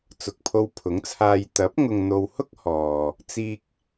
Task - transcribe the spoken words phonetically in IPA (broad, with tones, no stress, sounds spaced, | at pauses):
t͡s ʊ˨ k̚ pʰ o˧ w pʰ ʊ˨˥ ŋ t͡sʰ aː˧ j t̪ ɐ˨˥ p̚ ŋ ʊ˨ ŋ n̪ o˨ w h ʊ˥ k̚ h ɔː˨ | t͡s iː˧ k̚